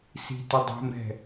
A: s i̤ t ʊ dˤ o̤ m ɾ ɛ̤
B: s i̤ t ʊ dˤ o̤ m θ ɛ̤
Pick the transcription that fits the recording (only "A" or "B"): A